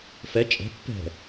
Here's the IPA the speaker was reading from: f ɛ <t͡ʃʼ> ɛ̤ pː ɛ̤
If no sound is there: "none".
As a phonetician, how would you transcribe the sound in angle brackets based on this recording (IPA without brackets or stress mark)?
t͡ʃʼ